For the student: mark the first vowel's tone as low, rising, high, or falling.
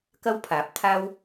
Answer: high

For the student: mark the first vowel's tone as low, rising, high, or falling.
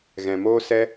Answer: low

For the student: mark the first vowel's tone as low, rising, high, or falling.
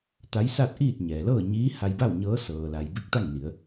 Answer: rising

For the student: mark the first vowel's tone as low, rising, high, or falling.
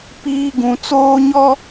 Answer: high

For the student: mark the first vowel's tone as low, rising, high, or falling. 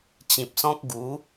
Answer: low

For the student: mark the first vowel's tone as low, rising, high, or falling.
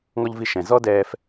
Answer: high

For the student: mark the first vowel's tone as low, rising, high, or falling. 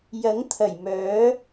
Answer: rising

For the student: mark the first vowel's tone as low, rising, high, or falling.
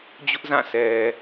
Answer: high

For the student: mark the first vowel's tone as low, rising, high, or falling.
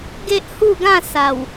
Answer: high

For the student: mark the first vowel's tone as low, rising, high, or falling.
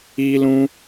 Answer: high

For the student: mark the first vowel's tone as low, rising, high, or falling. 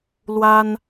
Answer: high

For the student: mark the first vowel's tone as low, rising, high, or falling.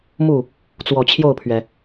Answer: falling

